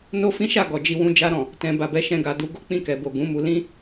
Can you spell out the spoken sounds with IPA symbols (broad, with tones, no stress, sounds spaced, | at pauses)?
n o˦ f ĩ˦ ʃ a˦˨ ɡ ɔ˨ d͡ʒ i˧ w ũ˧ d͡ʒ a˧ ɾ ɔ̃˨ | t ɛ̃˨ b a˨ b ɛ˨˦ ʃ ɛ̃˧ ɡ a˨ d u˨˦ ɡ o˦ k͡p ĩ˧ k ɛ˨ b o˨ ɡ ũ˨˦ m u˧ l ĩ˦